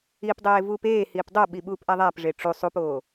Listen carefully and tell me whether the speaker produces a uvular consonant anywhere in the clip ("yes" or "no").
no